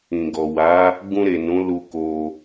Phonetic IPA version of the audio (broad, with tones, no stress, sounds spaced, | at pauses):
ĩ˨ ɡ ɔ˨ w a˨˦ | ɡ ũ˧ ɾ e˨ n ũ˨˦ l u˧ k o˧